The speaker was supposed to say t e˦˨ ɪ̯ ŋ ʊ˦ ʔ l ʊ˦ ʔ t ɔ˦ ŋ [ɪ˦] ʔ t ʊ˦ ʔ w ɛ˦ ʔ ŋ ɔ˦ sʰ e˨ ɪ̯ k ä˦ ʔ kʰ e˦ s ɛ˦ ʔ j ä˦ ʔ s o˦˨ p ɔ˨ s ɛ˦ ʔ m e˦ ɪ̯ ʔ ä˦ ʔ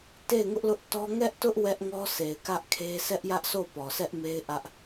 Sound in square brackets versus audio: incorrect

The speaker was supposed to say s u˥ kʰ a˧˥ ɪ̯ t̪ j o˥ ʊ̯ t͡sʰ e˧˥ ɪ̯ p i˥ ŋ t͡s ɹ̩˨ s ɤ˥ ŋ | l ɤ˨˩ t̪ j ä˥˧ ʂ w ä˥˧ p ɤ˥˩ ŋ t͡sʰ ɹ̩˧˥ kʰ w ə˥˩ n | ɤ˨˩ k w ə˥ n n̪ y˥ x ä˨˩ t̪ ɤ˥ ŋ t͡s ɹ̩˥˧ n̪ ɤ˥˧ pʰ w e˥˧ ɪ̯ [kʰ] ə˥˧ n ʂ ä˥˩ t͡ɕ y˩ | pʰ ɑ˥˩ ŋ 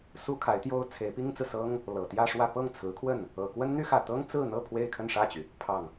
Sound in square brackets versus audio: correct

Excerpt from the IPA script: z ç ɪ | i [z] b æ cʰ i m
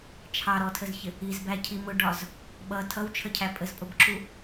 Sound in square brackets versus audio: correct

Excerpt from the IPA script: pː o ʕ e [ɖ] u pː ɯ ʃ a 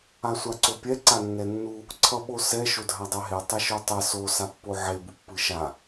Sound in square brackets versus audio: incorrect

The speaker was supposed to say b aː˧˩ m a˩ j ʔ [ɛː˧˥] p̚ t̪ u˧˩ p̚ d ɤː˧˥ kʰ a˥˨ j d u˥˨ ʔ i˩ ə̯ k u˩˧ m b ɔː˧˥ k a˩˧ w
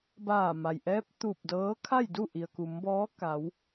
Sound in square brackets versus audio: correct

